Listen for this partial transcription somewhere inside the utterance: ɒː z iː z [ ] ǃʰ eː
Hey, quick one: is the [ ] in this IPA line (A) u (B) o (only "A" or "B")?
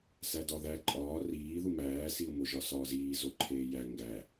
B